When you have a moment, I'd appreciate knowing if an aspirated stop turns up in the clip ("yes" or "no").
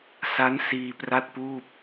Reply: no